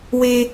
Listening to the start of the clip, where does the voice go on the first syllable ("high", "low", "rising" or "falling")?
high